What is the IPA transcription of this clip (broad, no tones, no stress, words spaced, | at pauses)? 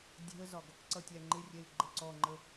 dʲɛ̤ə̯zɒɡ | ǀʌtʲæŋ͡ǃɪrʲɛɪ̯ ɡ͡ǃəǀɔŋ͡ǃə